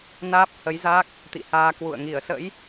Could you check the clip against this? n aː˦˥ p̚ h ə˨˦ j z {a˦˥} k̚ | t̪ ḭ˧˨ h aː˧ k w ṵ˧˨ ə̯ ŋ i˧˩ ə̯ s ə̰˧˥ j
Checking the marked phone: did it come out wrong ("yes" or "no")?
no